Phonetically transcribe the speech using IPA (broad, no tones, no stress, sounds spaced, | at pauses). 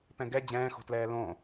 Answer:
p ɛ̃ ɡ ɛ d͡ʑ ɛ̃ː x o̤ t l ɛː l õ